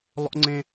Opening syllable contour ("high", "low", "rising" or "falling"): high